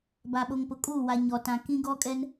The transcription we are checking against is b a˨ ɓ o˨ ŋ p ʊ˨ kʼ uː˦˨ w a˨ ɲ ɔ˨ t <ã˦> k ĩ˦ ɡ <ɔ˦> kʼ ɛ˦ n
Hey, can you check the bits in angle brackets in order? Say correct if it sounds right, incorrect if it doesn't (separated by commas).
incorrect, correct